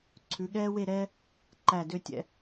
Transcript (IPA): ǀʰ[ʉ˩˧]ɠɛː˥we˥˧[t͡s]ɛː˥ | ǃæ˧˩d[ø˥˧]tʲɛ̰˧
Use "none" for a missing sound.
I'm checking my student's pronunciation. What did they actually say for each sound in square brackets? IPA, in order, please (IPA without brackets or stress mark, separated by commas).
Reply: ʉ˩˧, ɾ, ø˥˧